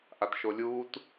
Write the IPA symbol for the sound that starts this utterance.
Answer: ʔ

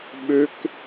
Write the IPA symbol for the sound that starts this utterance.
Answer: ɓ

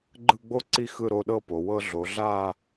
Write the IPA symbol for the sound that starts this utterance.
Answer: ɡ͡ǃ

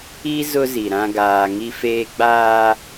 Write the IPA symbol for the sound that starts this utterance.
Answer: i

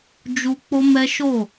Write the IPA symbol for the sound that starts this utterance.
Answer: d͡ʒ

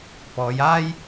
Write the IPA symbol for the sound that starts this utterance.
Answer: p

